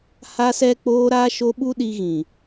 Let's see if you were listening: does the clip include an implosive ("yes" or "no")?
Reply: yes